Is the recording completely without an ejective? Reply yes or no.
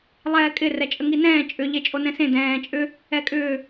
no